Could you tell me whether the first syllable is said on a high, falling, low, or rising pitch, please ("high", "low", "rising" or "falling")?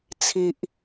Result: low